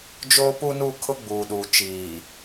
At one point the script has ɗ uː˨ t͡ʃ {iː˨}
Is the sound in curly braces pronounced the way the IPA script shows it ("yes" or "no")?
yes